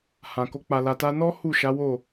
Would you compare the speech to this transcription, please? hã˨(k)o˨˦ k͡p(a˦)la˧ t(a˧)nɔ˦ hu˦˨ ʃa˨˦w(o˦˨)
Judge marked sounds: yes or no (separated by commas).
yes, no, yes, yes